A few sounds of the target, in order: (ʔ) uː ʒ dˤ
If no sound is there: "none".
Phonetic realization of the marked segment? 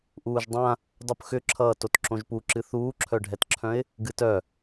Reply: ʔ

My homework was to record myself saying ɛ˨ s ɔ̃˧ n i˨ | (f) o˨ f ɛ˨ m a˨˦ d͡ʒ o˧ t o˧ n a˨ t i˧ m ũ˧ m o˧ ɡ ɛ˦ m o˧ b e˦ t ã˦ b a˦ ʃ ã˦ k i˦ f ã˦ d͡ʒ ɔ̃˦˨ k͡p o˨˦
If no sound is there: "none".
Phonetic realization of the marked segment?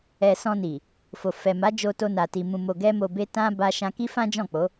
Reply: f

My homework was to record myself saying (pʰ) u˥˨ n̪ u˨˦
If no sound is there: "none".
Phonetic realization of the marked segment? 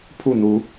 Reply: pʰ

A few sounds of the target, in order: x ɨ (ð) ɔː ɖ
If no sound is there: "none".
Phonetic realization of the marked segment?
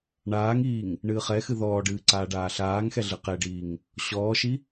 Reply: ð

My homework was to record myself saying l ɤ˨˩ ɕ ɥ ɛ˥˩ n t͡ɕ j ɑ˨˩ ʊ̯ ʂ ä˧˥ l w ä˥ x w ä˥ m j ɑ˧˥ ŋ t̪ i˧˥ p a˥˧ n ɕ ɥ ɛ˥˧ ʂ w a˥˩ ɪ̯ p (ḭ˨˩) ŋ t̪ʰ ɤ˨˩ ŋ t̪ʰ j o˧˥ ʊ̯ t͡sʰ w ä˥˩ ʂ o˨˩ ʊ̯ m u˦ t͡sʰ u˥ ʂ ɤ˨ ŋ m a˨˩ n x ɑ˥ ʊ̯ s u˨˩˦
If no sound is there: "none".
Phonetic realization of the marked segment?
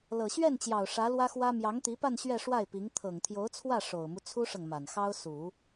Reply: i˧˥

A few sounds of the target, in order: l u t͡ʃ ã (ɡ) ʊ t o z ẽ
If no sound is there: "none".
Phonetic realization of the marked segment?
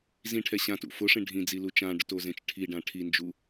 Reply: ɖ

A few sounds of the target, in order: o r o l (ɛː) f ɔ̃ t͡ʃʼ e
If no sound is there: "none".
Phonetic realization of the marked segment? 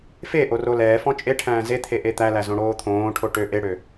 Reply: ɛː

